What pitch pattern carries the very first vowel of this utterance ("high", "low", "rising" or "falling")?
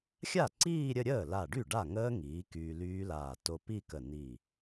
falling